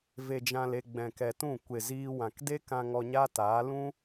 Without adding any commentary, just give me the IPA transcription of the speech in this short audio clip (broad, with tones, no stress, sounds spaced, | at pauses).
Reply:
v e˨ d͡ʒ ã˨ l e˨ ɡ͡b ɛ̃˨ k ɛ˨ t ũ˦˨ kʷ e˨ z iː˧ w ã˨ k d e˦ k ã˧ ŋ ɔ˧ ɲ a˦ t aː˨˦ l ũ˦